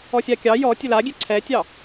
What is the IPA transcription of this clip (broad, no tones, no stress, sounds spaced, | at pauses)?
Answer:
ɔ sʲ a kʲ ɑ j ɔ tʲ ɘ l a ɡʲ ɛ ǀʰ ɛ tʲ ɑ